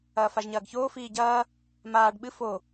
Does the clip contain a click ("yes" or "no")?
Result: no